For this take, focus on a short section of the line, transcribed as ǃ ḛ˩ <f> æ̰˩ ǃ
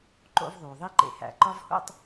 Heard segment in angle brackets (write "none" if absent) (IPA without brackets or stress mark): h